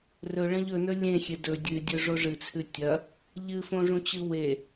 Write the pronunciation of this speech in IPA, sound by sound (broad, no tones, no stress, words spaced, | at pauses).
rɵɭɐ̃ʎ ɵnɵ lʲẽxʲe dɵ dʲʉdʲɵʐo ʐɨt͡sʰʉ tʲɐ | ʎɨfõʐũt͡ɕɨ we